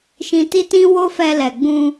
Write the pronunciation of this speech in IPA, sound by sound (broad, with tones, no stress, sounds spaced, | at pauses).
ʃ ĩ˧ t i˦ t ĩ˦ w o˦ f ɛ˧ l ɛ˨ ɡ͡b ũ˧